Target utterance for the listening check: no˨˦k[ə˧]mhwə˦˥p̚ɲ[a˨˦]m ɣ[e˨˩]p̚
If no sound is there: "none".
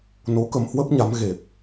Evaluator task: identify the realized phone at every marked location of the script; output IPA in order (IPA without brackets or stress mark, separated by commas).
ə˧, a˨˦, e˨˩